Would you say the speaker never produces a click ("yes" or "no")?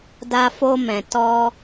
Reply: yes